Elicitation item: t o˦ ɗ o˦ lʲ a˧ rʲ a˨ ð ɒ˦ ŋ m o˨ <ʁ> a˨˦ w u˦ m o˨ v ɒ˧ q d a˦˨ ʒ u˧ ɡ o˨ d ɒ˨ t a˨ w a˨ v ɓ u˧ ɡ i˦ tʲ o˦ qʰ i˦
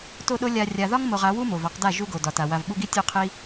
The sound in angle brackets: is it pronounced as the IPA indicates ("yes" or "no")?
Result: yes